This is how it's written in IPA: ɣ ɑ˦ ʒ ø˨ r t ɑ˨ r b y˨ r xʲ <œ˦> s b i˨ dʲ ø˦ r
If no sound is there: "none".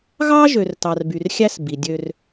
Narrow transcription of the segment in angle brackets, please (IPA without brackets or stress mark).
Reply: æ˦